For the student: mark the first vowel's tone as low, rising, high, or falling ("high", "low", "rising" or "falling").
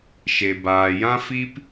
low